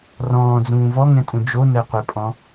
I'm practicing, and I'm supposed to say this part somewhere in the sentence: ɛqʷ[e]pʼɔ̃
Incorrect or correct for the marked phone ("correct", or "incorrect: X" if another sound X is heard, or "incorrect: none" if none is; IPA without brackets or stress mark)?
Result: correct